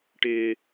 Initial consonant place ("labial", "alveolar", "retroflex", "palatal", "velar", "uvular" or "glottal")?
retroflex